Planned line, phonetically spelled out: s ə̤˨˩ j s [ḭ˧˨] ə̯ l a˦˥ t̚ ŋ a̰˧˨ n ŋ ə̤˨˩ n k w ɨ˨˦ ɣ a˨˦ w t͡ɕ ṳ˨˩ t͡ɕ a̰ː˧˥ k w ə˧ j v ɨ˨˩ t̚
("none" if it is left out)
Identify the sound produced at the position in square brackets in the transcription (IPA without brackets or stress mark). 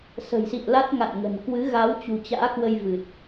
ḭ˧˨